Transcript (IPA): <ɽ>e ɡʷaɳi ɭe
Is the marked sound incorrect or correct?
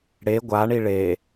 correct